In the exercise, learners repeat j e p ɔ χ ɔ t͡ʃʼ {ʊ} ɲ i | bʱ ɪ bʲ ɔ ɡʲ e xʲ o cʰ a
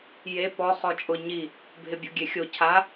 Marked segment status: correct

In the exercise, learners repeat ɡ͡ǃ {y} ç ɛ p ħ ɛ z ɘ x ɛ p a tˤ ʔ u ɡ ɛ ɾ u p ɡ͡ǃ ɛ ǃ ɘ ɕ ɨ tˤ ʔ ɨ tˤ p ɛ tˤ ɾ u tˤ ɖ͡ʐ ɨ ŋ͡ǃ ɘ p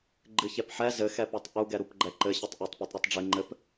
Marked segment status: incorrect: ɨ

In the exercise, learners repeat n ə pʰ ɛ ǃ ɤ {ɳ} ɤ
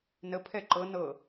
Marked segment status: incorrect: n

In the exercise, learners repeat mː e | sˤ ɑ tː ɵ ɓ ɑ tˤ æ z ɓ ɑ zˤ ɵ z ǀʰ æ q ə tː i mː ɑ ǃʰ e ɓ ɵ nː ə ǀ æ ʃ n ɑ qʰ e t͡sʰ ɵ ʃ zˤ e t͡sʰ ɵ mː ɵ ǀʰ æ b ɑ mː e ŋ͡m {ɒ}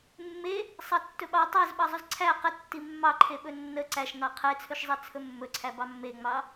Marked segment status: incorrect: ɑ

